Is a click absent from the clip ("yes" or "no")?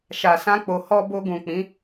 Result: yes